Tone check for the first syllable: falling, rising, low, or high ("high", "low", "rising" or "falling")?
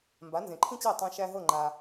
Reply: rising